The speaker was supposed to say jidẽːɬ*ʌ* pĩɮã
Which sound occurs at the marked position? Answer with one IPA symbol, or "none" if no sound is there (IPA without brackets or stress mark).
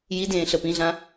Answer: ə